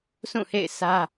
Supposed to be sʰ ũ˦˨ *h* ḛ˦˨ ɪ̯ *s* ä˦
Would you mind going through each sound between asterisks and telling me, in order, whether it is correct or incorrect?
correct, correct

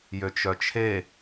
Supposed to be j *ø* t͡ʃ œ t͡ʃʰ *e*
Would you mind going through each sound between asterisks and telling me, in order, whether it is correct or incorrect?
correct, correct

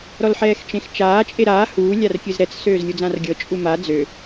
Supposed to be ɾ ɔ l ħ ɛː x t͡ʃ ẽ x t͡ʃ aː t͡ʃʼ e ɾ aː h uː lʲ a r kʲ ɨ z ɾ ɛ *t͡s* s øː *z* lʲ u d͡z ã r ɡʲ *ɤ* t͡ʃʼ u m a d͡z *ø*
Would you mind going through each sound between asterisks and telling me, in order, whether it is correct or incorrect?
correct, correct, correct, correct

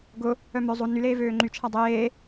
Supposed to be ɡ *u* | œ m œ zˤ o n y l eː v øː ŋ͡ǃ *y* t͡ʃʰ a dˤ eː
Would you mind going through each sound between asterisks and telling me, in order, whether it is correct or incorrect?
incorrect: ʊ, correct

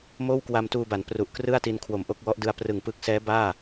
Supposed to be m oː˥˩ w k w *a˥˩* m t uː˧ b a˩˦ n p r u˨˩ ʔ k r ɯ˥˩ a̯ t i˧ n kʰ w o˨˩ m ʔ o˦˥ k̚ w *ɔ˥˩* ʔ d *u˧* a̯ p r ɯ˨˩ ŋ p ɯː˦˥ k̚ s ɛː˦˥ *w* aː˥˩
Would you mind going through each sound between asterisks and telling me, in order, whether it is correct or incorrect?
incorrect: a˧, incorrect: ɔ˦˥, incorrect: ɯ˧, incorrect: b

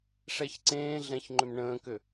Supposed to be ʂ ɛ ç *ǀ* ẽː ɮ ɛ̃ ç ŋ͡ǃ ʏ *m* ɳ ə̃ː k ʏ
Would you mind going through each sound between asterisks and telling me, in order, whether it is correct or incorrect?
correct, correct

